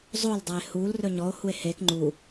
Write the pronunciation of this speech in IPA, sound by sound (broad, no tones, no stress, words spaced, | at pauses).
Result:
zˤol dˤae̯hul rɵɲɔo̯ hue̯hek ŋ͡ǃu